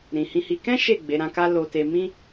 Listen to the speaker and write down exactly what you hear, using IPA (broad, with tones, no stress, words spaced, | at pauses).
ɾĩ˨hĩ˧hi˧ kɛ̃˦ ʃe˦˨ ɡ͡be˨˦ɾã˧ka˦ lo˧ te˧mĩ˦